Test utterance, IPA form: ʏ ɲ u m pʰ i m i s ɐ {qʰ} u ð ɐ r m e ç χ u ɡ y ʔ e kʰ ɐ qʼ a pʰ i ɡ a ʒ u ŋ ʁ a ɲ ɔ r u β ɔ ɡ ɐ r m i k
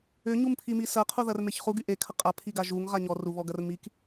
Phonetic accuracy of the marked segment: correct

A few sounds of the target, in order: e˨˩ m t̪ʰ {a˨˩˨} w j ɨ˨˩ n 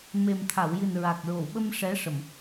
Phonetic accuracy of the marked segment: correct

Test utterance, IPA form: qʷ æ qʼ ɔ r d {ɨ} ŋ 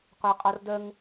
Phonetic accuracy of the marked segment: incorrect: ə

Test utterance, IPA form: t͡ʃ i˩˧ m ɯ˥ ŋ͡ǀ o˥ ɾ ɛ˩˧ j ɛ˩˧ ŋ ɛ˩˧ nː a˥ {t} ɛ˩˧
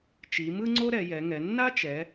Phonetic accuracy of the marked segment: incorrect: t͡ʃ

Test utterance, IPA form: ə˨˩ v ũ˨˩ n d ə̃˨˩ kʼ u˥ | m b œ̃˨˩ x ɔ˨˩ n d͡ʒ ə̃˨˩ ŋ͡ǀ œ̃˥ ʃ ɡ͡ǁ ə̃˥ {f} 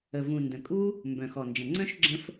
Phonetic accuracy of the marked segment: correct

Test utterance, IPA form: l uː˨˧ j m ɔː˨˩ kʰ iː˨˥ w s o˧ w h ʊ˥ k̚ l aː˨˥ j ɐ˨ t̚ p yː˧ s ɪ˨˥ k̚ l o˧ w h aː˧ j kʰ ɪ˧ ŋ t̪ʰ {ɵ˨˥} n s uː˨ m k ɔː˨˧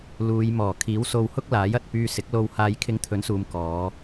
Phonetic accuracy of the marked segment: correct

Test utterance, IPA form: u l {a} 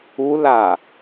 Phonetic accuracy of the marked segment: correct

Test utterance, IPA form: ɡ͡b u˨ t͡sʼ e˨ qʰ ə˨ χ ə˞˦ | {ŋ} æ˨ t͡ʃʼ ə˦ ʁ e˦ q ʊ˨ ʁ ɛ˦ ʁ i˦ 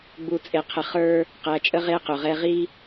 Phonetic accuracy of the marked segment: incorrect: q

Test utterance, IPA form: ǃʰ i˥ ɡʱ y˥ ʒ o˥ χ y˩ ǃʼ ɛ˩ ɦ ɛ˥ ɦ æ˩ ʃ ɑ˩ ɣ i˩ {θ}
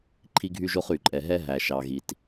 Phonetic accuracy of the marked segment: incorrect: t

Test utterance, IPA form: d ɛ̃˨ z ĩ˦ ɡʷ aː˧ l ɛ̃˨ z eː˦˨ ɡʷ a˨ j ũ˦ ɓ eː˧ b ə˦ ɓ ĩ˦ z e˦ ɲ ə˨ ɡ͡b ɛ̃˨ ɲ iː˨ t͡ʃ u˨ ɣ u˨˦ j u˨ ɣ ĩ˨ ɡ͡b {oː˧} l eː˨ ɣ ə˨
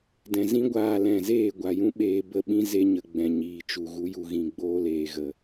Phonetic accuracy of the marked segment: correct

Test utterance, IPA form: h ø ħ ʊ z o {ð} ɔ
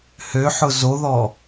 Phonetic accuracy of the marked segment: correct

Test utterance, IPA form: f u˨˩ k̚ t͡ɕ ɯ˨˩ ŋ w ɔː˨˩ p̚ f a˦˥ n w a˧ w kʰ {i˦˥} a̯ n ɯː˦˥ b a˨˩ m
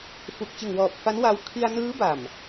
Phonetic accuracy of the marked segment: incorrect: i˧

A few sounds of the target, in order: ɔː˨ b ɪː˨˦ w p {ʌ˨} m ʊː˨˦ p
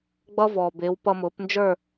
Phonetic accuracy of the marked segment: incorrect: ʌ˧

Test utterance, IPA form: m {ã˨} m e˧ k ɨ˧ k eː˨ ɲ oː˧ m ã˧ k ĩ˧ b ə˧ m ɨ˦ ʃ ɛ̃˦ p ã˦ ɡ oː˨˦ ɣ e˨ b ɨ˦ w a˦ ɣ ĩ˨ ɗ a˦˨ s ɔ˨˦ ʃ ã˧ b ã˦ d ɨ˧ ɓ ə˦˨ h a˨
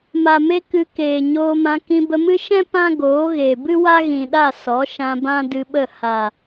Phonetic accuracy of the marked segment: incorrect: a˨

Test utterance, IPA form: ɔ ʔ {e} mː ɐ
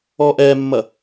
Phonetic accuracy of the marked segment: incorrect: ɛ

